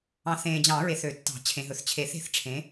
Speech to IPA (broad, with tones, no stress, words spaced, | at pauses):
ɑ̃˨˦θẽː˨d͡ʑɑ̃˨˩˦ɹe˨θ ø˨˩˦ tːɑ̤˨˩˦ t͡ɕʰẽ˨ɦɵ˨θ t͡ɕʰe˨˩˦θe̤˨˦θʈ͡ʂʰẽ˨˦